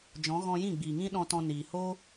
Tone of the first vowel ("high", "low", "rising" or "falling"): rising